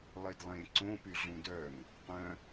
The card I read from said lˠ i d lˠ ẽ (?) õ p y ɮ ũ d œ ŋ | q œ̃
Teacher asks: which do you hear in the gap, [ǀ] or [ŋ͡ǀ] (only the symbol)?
ǀ